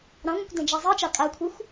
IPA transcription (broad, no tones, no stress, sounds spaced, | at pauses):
ɾ ɑ̃ ŋʷ ɛ̃ kʷ d ɛ̃ d͡ʒ a zˤ i t͡ʃ ɑ kʼ a kʷʰ e xʷ